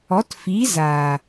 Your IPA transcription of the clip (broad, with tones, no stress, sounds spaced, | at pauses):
ɔ˨˦ t f iː˨˦ z aː˨